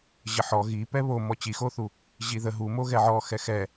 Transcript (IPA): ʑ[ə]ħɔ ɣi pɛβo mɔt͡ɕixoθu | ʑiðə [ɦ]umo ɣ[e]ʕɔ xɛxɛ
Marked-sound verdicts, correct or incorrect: correct, correct, incorrect

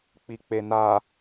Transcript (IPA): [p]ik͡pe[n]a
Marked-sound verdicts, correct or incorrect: incorrect, correct

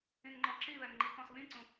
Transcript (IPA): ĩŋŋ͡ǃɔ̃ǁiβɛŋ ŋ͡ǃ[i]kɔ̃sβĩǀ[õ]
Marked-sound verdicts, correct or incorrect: correct, incorrect

